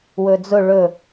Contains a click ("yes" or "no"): no